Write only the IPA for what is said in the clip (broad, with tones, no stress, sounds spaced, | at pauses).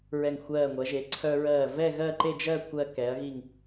ɹ ɛ˧˩ ŋ xʷ ɜː˧˩ ŋʷ ɜ˩˧ ʒ e˩˧ ǀʰ œ˧ ɹ ɜː˧˩ v ɛ˥˧ ɣ ɜ˥˧ ǃ e˥˧ d͡ʒ ɜ˥˧ kʷʰ ɜ˧ k ɛ˩˧ ɐ̯ ɣ i˧˩ ŋ